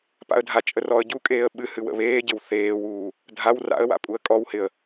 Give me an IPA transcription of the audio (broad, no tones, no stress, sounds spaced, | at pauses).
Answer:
p a̰ ə̯ dʱ a t͡ʃʼ ə r ɔ ə̯ ɟ u kʼ eː ə̯ ɓ ɨ h ɨ w ə̰ β eː ɟ ɪ w θ eː w uː | dʱ a w r a̰ ə̯ w a̰ pʼ u ə̯ kʼ ɔ w h ɪ ə̯